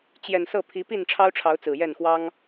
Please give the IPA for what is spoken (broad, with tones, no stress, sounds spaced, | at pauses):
t͡ɕ j ɛ˨˩ n s ɤ˥˨ pʰ i˨˦ p i˥˨ n ʈ͡ʂʰ ɑ˦ ʊ̯ ʈ͡ʂʰ ɑ˨˦ ʊ̯ t͡s ɹ̩˨˩ j ɛ˥˨ n x w ɑ˦ ŋ